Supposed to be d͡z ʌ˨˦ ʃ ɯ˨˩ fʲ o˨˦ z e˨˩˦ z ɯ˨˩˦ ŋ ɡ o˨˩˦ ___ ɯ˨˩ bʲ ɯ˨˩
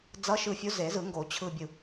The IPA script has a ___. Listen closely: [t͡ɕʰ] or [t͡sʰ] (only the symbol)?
t͡ɕʰ